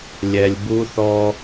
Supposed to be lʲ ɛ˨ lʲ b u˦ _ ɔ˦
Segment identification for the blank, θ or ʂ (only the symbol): θ